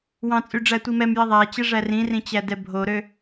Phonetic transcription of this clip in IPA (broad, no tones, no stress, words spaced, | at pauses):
wɑ̃t͡sʼy ɖ͡ʐætʷimɛmji ðˤæt͡ɕɛ ʐærĩrĩ t͡ɕædɛbʱoɾø